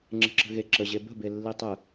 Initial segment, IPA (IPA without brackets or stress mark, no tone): ŋ͡ǁ